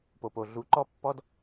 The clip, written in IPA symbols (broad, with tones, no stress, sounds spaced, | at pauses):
p o˨ p o˨ ɮ u˨˦ ǃ ɔ˦ pː ɔ˦ d